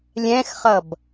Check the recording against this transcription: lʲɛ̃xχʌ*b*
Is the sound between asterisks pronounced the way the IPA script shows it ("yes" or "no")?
yes